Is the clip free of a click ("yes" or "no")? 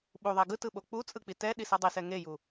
yes